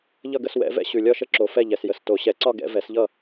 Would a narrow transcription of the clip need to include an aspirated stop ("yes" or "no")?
no